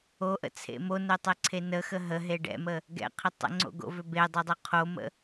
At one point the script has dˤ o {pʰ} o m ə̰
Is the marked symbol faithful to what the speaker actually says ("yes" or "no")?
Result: no